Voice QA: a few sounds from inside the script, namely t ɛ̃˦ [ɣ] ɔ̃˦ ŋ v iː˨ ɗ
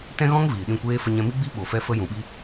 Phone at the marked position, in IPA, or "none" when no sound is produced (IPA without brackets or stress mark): ɣ